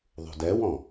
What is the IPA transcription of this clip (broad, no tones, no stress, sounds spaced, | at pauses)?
ðˤ ṳ d ɛ w ɔ̃